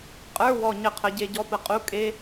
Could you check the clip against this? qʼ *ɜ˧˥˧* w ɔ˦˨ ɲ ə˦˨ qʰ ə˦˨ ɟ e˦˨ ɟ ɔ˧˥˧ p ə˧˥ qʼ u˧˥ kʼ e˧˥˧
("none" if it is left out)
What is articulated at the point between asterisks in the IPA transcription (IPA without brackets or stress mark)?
ə˞˧˥˧